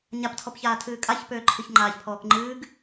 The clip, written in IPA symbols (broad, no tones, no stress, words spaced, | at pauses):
ɲaptʰɔpçaːtʰɨː kʼaçpøːǃʰɨç ŋ͡ǃaːçpʰɔːkŋ͡ǃɨːɡ